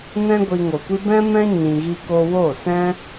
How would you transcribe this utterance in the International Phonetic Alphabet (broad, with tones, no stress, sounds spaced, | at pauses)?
n ɛ̃˦ ɡʷ i˧ ŋ o˨ kʷ i˦ b ɛ̃˦ m ɛ̃˦ ɲ ĩ˧ ɣ i˦ k o˦ w o˦˨ s ɛ̃˦